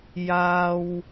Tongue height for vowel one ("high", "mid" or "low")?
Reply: low